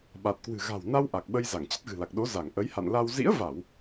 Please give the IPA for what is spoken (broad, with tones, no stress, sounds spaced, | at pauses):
ɓ a˨˩ t̚ k w ɨ̤˨˩ ɣ a̤˨˩ w n a˧ w ʔ a˨˩ k̚ ɓ ə˧ j z a˧˩ ŋ t͡ɕ ə˦˥ t̚ ɣ ɨ̤˨˩ l a˨˩ k̚ ɗ o˨˦ z a˧˩ ŋ ʔ ə˨˦ j h a̰˧˨ n l a˧ w z ḭ˧˥ ə̯ v a˧˩˨ w